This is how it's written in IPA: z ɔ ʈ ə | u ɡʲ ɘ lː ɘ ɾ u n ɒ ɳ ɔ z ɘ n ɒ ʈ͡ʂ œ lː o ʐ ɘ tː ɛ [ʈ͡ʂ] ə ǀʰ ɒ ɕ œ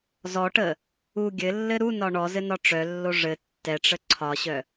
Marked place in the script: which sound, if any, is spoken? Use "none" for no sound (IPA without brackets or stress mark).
ʈ͡ʂ